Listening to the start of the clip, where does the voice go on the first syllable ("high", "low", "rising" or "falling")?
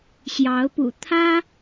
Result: rising